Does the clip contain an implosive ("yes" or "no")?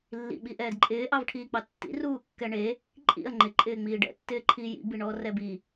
yes